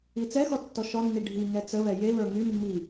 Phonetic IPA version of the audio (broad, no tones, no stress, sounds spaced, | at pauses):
i t͡s ɛ x ɔ tː ɔ ʃ ɔ nː i ɖʱ i ŋ ɛ t͡s ə β ɛ j e β ə˞ ŋ y mː i